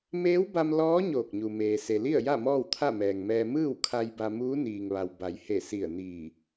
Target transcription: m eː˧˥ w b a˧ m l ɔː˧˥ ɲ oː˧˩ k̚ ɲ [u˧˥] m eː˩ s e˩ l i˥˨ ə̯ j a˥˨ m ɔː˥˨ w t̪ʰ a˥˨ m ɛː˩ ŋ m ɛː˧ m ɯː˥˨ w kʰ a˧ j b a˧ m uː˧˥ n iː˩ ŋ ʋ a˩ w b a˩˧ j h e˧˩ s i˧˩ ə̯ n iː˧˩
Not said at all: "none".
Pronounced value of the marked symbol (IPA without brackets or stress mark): u˩